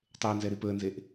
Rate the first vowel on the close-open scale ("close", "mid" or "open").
mid